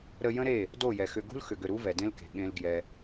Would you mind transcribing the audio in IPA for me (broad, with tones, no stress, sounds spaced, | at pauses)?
ɾ ə˧ j ə̃˦ ɾ e˦˨ | d o˦˨ j ɛ˨ x ʏ˧ ɡ ṳ˦ l x ʏ˨ ɡ ʏ˦˨ ɾ u˦ v ɛ˨ d ẽ˦ l k e̤˨ ɠ ẽ˧ l ɡ j ɛ˧